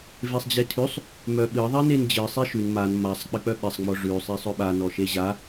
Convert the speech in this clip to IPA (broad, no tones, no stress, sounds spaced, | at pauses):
v e sˤ d͡ʑ e tʰ ʉ sˤ | m œ ɓ ɨ ðˤ i n e n d͡ʑ ɨ sˤ i ʃ ʉ n m a n m a sˤ k͡p ɨ k͡p œ ɓ e sˤ ŋ͡m ɔ ʐ ʉ sˤ i sˤ œ ɓ a n ɔ ʃ e ʑ a